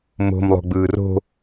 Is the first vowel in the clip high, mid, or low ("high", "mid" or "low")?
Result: mid